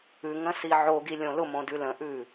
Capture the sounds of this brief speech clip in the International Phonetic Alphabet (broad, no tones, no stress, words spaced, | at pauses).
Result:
ʉŋə̃si ʕoɡilʲõ lʊmõdʉ lə̃ʔʉ